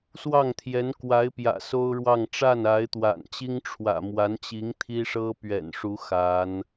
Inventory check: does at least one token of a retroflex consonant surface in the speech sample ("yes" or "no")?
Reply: yes